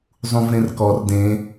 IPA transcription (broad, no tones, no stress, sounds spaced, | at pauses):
zˤ ũ v ɾ ẽ r k ɔ r d ẽ